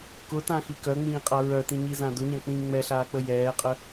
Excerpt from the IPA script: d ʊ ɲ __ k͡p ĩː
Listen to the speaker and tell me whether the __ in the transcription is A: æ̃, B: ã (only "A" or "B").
B